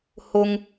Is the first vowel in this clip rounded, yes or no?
yes